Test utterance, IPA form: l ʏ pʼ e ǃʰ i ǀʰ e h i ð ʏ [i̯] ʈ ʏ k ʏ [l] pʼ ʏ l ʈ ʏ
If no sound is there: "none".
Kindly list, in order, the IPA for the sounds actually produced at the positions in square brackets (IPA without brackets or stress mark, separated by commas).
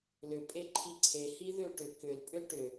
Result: u̯, l